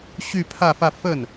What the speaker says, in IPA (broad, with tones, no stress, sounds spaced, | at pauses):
ɕ y˥˧ pʰ ä˥˧ f ä˥˧ f ə˥˩ n